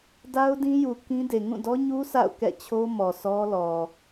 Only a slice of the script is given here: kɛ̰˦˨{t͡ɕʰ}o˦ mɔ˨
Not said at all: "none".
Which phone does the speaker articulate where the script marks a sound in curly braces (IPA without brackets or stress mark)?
t͡ɕʰ